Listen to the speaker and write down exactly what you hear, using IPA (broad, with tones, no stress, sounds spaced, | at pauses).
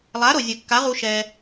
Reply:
lˠ a˨˦ ɾ o˨ zʲ ɯ˨ kː a˨˦ ʁ u˧ ʃ ɛ˧